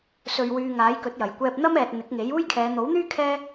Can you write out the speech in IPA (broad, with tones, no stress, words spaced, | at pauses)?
sɵ˧ɥwyː˧ ŋaː˨˥jkɵ˨˥t̚jɐ˨˩j kʷɛː˧p̚n̪ɐ˥mɛː˨t̚ n̪ɪ˨˥k̚ŋe˨˥j uː˥jkʰɛː˨˧ n̪o˨˥wn̪yː˥ kʰɛː˥